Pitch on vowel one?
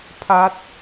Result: falling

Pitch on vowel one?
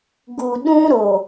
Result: low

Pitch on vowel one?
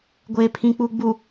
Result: low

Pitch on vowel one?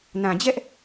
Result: low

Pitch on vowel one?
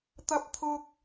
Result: high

